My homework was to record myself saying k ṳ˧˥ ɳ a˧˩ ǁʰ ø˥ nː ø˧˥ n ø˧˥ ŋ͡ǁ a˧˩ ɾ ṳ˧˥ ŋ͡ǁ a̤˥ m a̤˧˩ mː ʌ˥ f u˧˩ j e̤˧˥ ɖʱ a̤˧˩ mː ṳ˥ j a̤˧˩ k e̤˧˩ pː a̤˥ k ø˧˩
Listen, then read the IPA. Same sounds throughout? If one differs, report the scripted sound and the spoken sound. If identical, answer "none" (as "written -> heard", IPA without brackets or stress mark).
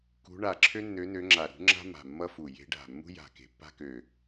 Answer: none